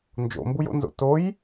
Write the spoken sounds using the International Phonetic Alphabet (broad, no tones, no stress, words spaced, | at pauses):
nd͡ʒo̰mbujo̰nzo̰ toj